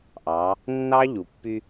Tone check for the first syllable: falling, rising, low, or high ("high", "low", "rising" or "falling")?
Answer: rising